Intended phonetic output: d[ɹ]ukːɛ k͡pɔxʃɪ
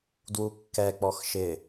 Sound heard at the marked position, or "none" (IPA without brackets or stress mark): w